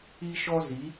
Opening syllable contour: high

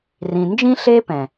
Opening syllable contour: low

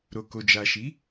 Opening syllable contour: low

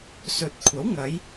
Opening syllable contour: rising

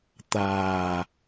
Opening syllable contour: low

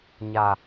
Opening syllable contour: low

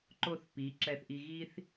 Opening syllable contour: falling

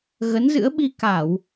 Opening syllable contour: rising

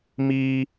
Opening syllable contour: high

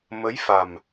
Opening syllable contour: rising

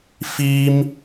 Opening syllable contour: high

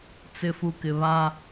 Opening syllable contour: low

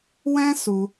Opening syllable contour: high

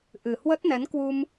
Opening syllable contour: low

